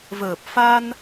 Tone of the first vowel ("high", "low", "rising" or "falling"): low